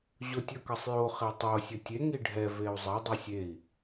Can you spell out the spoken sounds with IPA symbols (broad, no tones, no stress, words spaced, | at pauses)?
ʑotʲʌkʌsˤjo χetˤo sʲʌtʲe ŋiɖʱɛ veu̯zˤe dˤɯsʲei̯